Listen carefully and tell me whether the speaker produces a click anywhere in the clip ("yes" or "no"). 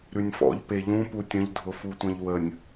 no